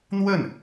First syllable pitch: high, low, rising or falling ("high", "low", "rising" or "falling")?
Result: falling